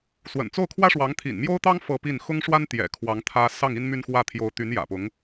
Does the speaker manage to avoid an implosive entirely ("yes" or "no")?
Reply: yes